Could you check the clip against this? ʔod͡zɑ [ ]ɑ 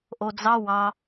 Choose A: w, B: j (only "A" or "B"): A